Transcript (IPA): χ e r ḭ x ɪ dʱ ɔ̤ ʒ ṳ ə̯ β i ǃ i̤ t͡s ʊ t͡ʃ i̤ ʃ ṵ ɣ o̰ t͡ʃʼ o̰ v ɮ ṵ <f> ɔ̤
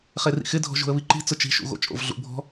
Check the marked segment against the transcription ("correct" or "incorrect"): incorrect